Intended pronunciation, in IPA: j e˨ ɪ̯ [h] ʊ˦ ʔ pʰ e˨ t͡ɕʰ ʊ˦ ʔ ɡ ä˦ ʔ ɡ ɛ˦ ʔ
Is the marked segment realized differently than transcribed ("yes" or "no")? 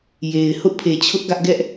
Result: no